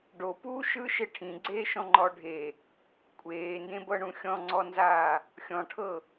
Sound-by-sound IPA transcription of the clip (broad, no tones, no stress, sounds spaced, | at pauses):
ɖ o p uː ʃ ɯ ʃ e ʈʰ ĩ ɡ͡ǀ eː ʃ ɔ̃ ŋ͡ǃ ɔ ɖʱ e | kʷʼ eː n d ẽ b ɤ ɳ ũ xʲ ɔ̃ ŋ͡ǀ ɔ n z aː | xʲ ɔ̃ ʈʰ ɤ